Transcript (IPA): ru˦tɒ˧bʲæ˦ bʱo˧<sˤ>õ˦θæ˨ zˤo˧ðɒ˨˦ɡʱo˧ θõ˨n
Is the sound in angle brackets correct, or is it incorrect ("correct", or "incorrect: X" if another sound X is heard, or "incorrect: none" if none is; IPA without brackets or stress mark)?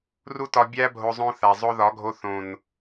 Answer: incorrect: zˤ